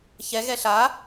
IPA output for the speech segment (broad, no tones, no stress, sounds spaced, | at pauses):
ç ɛ ɣ ɛ ɬ a